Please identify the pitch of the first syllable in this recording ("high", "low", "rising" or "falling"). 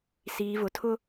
low